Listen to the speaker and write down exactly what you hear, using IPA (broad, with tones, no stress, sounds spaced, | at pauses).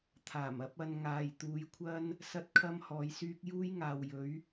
t̪ʰ aː˨˩ m ɐ˨˥ p̚ ɐ˧ n ŋ aː˨ j t̪ uː˨˧ j kʷʰ ɐ˥ n | s ɐ˥ t̚ kʰ ɐ˥ m h ɔː˧ j s yː˥ k̚ j uː˥ j ŋ aː˨ w j ɵ˨˥ ɥ